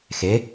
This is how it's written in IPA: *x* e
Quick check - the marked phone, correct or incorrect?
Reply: correct